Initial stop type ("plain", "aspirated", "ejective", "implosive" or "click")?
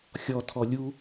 aspirated